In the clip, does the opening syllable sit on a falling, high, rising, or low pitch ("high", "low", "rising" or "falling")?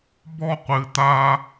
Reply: high